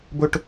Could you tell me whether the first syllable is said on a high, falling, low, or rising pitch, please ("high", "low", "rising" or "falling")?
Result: high